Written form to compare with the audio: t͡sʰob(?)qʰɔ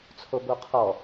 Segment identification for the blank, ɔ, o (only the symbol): o